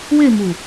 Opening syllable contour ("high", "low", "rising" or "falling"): falling